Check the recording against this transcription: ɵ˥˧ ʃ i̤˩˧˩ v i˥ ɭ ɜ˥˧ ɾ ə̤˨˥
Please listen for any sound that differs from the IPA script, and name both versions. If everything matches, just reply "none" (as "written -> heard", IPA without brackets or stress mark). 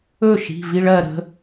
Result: none